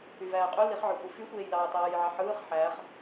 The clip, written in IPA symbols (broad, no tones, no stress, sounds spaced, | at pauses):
y v æː qʼ y l i χ ʕ ø sʷ ɯ f y sʷ eː j l ɑː t ɑː j ʕ ɑ ħ ɯː χ ħ æ χ